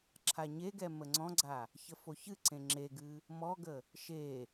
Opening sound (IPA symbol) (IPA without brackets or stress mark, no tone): ǁʰ